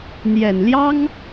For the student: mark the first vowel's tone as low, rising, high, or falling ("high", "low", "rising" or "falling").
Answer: low